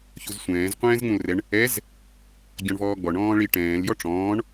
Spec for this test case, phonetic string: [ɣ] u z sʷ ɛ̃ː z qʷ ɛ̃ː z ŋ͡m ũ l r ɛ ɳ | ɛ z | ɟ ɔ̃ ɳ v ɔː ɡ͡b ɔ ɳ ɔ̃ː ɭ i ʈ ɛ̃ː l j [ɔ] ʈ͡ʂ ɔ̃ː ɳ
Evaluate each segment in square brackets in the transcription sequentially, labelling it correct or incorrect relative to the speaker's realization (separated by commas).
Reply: incorrect, correct